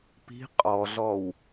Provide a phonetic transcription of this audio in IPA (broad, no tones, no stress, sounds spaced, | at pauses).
p i̤ qʼ ɔ ɮ ɔ w